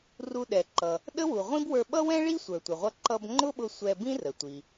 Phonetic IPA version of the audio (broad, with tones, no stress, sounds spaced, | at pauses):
r u˧ ɗ ɛ˩ ǃ ʌ˩ | ɗ ə˥ w u˩ ʁʷ ĩ˥ b w ə˞˧ ɓ ʌ˥ w ɛ̃˥ ɭ i˥ sʷ ə˞˩ tʷ ɪ˩ ʁʷ ʌ˧ ǃ ʌ˧ b ŋ͡ǃ ʊ˥ ɓ ʊ˧ sʷ ɛ˧ b ĩ˥ r ə˩ tʷ i˩